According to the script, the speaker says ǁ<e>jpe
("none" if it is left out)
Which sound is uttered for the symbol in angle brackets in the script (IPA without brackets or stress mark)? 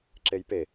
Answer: e